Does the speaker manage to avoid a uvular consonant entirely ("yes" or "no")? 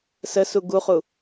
no